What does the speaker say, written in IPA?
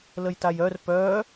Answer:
ləjtajœr pœ

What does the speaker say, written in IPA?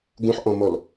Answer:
ɡũħʔɔ̃mɔl

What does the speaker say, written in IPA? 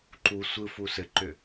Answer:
ǃu sʷɯfu sɘǃʏ

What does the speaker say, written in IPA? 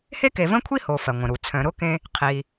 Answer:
he˥ke˨və̃˥kʷʰi˥ ho˨fɜ˩ŋʷə̃˩ɾu˩ t͡sʰœ̃˨ɾʊ˥kẽ˦ | qʰi˨

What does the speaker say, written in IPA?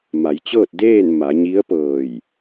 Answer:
ma˩˧jt͡ɕɤː˥˨t̚deː˥˨n ma˩˧ɲi˧˥ə̯pɤː˧˩j

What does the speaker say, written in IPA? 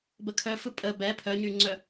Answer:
bəkʰœ fɯpʼə bɛ pʰœɲyŋ͡ǀœ

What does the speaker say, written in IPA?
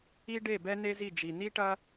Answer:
i˦ɖe˦˨bɛ˦ ne˦zi˦˨d͡ʒi˨ ni˦ʈɐ˦

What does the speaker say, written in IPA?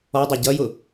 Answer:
ɔdˤʊ ɟʌjʊ

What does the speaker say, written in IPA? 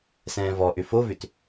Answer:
sɛ̃ːvɔʔʏ fovʏt

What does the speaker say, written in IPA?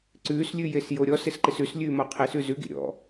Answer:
ǀʉːslʲʉjes joɾʲɔs ɪsǃɪsʉs lʲʉːmɔqʰesʉ zʉɡḭ ɾʲɔ̰

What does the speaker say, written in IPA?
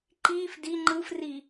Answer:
ǃiːf di ŋ͡ǃɯfri

